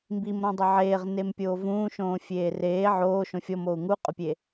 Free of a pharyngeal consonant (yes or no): no